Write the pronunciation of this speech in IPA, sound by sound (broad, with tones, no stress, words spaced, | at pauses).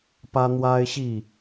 pä˦n̪wa˦ɪ̯ɕi˥˨